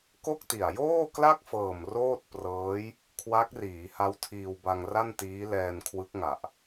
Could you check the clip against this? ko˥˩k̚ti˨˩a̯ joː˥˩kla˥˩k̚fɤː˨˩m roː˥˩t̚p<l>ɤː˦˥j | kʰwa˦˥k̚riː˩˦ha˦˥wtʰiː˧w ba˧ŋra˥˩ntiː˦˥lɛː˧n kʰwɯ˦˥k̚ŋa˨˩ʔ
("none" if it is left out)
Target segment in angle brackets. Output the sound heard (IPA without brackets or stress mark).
r